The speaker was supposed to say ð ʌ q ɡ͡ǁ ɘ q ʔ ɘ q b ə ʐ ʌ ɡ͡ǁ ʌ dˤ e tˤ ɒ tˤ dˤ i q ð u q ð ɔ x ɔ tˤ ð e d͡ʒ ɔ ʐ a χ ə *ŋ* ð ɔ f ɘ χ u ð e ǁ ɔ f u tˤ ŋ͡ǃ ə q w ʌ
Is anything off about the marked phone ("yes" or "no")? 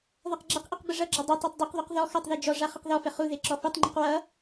yes